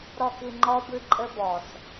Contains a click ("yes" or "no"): yes